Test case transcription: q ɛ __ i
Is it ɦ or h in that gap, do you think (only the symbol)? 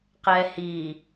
h